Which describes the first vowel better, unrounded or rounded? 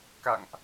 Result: unrounded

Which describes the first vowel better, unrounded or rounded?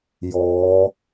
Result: rounded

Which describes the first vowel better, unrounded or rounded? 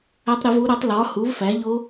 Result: unrounded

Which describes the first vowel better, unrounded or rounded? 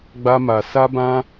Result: unrounded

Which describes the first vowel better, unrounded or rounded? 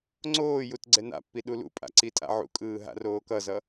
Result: rounded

